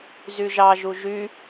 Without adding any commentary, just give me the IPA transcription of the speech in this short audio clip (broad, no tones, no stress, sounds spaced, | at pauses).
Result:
z y ʒ ɑ ʒ u ʒ y